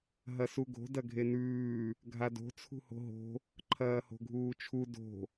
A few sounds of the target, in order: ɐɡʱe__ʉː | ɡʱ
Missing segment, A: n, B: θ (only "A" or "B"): A